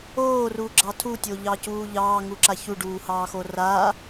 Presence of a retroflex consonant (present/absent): present